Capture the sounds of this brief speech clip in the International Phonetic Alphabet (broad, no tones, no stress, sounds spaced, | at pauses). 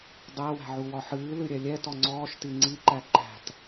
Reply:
dˤ æ w æ̤ ʕ u w ɒ ħ ɨː l ɨ ɾʲ ɛ lʲ ɛ t ɔ ŋ͡ǀ ɔː ʃ t i ŋ͡ǀ i ǃ æ ǃ æ̤ t